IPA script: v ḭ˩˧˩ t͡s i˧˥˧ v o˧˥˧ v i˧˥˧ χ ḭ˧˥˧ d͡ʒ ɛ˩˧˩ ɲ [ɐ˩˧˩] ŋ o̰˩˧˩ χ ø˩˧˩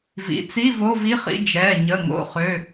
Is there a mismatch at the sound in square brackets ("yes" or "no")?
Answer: yes